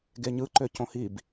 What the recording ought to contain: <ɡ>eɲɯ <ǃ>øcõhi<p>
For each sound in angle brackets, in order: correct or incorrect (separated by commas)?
correct, correct, incorrect